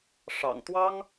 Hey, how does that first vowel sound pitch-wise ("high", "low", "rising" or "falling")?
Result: low